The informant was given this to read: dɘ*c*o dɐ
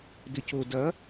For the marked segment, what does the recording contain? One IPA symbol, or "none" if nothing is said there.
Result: c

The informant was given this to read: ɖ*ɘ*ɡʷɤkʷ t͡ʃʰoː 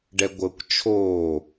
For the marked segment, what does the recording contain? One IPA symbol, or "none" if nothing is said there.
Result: ɛ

